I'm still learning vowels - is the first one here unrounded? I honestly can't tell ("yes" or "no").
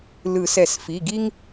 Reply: yes